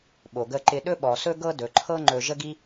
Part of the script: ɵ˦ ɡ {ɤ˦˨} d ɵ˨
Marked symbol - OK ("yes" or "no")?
no